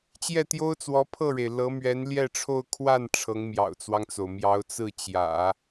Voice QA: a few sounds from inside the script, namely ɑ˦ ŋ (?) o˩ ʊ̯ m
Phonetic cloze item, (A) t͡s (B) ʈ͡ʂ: A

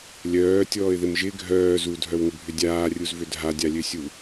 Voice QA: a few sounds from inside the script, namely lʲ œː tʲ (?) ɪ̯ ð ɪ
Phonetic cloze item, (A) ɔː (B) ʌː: A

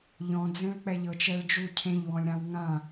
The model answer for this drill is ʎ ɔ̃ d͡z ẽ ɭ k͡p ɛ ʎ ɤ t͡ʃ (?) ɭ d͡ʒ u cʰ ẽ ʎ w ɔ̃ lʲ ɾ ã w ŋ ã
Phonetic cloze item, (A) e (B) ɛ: B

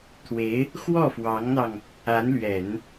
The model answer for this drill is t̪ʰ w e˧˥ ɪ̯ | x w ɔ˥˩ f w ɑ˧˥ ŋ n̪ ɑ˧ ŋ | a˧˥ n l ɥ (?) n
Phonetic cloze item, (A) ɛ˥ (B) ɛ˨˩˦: B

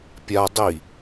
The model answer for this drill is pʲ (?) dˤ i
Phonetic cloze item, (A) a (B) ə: A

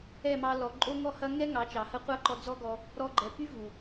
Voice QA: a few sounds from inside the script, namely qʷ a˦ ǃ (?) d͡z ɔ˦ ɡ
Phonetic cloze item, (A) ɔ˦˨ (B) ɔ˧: B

